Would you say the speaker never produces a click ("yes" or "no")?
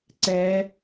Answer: no